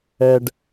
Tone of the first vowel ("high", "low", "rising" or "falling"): high